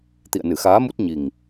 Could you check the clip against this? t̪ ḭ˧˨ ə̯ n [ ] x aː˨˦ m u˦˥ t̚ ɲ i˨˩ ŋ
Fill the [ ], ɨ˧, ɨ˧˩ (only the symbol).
ɨ˧˩